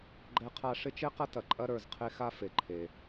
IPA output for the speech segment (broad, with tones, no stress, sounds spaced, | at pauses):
ɡ͡ǃ ɛ˥ qʰ a˥ ʂ ɪ˥ t͡ʃ e˥ q ɐ˥ t ɐ˩ ǃʼ ɐ˥ ɾ ə˞˩ z qʰ e˥ x a˥ f e˩ ǃʰ e˩